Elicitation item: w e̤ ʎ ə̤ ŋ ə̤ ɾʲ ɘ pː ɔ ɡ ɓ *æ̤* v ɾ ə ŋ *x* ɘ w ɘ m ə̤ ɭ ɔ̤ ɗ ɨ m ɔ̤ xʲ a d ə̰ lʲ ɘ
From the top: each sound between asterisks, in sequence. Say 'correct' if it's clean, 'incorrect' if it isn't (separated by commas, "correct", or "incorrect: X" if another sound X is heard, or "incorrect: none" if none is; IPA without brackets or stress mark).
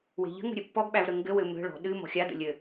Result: incorrect: æ, incorrect: ɡ